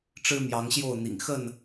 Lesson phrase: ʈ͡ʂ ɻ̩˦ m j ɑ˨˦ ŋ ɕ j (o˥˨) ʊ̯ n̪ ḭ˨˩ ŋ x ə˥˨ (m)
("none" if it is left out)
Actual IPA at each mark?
o˥˨, n

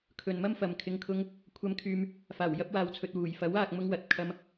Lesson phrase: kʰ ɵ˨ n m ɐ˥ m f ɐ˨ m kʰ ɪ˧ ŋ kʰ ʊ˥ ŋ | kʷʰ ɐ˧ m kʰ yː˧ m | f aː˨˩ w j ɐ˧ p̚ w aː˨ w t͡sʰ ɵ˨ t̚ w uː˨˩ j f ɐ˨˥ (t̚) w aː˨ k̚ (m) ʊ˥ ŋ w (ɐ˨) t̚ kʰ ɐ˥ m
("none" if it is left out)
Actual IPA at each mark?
none, m, ɐ˨

